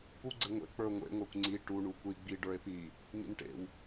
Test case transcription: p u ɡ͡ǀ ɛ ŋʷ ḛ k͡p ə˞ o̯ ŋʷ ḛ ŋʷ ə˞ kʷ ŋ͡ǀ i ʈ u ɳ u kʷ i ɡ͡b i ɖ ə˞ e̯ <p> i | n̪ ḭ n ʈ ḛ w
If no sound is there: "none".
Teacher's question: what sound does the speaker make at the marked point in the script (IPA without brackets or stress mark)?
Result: p